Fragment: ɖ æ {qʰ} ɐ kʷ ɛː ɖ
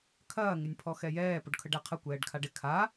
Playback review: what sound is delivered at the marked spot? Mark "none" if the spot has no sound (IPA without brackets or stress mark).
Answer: qʰ